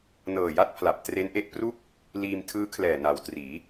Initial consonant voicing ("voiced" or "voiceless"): voiced